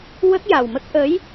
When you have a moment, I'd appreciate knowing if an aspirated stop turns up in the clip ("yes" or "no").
no